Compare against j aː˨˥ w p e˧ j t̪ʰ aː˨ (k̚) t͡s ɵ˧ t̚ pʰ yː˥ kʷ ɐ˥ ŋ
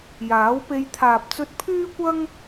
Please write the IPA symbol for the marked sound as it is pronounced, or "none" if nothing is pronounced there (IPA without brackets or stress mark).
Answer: p̚